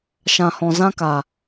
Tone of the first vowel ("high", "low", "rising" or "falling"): low